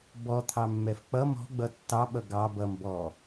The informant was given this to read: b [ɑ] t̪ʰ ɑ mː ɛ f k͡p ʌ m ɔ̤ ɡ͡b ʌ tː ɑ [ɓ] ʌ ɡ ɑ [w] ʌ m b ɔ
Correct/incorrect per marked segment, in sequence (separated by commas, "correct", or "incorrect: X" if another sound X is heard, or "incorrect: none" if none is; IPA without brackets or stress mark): incorrect: ɔ, correct, incorrect: b